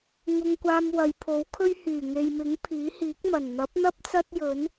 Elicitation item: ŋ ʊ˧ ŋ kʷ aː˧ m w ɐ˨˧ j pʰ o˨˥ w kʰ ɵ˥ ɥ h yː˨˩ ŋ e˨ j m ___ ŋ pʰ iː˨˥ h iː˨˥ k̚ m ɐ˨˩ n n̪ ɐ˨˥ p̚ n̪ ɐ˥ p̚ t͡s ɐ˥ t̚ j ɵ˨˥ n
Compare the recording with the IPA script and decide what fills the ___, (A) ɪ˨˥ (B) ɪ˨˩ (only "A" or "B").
A